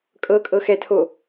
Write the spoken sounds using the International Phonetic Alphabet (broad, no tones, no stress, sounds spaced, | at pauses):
kʼ ɤ kʼ ɤ x ɛ tʰ o